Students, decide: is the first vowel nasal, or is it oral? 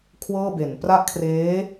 oral